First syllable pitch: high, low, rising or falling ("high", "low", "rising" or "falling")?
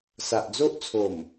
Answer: low